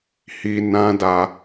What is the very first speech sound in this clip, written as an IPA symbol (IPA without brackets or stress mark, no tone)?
h